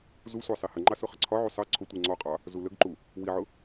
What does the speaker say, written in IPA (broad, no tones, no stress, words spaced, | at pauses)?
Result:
zusʷɑ sˤihəŋ͡ǃɑ sʊχəǀʰɒʕu sˤɜ ǀʰʊ tʷiŋ͡ǀɔqʼɑ | zuləɡǃu | wiʕʊ